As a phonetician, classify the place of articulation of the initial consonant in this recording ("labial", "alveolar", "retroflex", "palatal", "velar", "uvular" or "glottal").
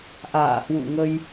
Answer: glottal